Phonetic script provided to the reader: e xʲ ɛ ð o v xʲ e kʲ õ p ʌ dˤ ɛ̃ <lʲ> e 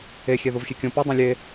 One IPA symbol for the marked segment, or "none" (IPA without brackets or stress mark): lʲ